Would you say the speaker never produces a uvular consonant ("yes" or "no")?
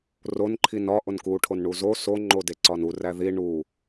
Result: yes